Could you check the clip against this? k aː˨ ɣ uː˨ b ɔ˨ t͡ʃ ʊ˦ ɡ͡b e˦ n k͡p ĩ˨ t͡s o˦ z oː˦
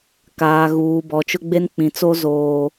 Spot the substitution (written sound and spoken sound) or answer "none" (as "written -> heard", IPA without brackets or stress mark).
none